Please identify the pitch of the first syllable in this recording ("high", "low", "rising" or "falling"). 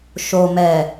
low